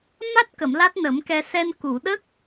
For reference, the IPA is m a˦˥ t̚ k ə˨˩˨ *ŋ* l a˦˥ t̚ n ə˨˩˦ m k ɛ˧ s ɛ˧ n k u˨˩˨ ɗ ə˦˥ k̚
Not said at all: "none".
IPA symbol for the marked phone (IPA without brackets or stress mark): m